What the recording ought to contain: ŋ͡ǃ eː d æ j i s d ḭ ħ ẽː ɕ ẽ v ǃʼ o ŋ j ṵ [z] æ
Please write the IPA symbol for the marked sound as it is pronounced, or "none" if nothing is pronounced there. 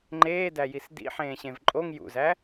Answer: z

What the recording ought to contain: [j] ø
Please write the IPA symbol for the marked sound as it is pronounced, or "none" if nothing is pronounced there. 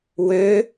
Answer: w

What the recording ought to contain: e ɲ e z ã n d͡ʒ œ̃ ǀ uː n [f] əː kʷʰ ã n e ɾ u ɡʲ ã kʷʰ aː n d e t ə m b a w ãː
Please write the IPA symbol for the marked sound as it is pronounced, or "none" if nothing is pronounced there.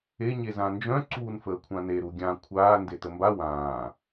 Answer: f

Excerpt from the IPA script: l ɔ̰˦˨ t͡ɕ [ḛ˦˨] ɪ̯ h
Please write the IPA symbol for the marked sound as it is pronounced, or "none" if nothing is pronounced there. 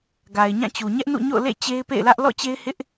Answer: e˦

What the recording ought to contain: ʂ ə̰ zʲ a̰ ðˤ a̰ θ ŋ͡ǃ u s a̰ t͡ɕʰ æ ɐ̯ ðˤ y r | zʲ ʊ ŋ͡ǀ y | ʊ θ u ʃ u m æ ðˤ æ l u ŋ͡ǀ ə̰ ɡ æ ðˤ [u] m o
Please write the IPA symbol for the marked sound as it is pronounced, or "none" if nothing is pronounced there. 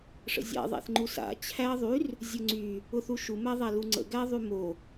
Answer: y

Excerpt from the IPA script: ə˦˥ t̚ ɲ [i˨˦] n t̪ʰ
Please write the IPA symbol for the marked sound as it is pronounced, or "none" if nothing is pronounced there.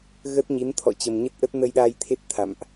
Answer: i˨˦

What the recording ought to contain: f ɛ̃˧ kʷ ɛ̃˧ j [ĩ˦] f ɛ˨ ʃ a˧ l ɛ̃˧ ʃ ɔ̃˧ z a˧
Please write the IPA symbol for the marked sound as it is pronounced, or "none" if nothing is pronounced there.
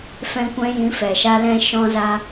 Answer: ĩ˨˦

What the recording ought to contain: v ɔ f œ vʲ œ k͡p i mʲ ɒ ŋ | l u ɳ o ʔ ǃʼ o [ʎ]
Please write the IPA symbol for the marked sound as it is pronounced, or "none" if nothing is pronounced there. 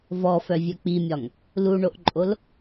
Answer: l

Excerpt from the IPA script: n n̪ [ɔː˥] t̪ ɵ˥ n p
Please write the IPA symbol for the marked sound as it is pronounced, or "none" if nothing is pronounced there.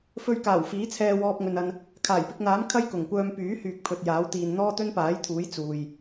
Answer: ɔː˥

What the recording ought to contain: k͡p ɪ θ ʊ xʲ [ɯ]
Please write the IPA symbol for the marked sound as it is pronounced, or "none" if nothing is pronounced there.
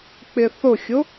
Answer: ʊ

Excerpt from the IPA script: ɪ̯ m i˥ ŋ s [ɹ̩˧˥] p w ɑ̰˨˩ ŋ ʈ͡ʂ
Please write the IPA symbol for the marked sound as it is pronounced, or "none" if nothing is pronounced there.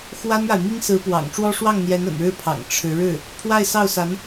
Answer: ɹ̩˧˥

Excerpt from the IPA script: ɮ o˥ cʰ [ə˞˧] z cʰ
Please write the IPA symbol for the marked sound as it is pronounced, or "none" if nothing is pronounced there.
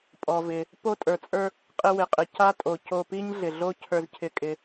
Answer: ə˞˧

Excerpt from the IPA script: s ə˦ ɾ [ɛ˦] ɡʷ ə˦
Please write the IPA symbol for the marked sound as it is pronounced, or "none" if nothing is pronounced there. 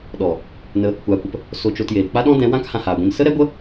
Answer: ɛ˦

